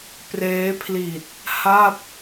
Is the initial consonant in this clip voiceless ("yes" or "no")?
yes